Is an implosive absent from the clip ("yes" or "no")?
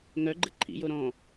yes